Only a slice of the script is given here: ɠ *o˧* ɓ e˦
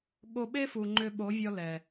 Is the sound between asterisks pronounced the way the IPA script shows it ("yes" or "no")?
yes